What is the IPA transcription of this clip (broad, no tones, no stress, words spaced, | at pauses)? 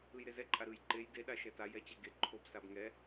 ɯjɾezɛǃʼa ɾɯj ǃej deɗa ʃɛta jɛt͡ɕɛɡe ǃʰob sabŋɛ